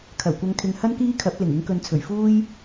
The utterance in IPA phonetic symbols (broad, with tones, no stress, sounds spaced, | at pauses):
kʰ ɐ˨˩ w kʷ ɐ˧ ŋ kʰ ɪ˧ ŋ h ɐ˥ n k iː˥ kʰ ɐ˨˥ p̚ l ɪ˨˩ ŋ ɪ˨˥ ŋ k ɵ˨˧ n t͡sʰ ɵ˨˩ ɥ f uː˥ j